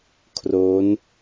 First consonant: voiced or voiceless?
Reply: voiceless